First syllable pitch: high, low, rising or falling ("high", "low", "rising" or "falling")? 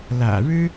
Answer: low